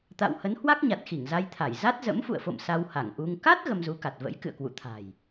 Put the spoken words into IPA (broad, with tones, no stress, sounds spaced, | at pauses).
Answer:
t̪ a̰˧˨ w h ə˨˦ n h w a˦˥ k̚ ɲ a˨˩ t̚ x i˧˩ ŋ z a˧ j t̪ʰ a˧˩ j z a˦˥ t̚ z ə̰˧˥ m f ṵ˧˨ ə̯ f o̰˧˨ m s a˧ w h a˧˩ ŋ ʔ u˧ ŋ k a˦˥ t̚ ɣ ə˧ m z u˨˦ k a˨˩ t̚ v ə̰˧˥ j k ɨ̰˧˨ ə̯ k w ṵ˧˨ t̪ʰ a̤˨˩ j